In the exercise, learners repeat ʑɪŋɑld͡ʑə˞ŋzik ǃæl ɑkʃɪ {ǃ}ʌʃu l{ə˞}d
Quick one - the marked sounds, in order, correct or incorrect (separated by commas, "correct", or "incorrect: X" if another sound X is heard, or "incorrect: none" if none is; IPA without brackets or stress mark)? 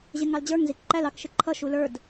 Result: incorrect: ǃʰ, correct